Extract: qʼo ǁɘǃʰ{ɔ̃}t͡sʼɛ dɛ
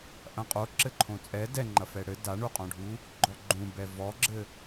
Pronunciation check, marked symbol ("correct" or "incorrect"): incorrect